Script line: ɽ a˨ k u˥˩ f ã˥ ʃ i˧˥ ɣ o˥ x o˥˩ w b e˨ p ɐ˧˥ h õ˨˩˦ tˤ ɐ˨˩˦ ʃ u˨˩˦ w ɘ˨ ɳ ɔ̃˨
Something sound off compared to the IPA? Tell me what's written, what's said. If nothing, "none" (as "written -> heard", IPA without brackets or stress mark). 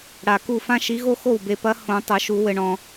none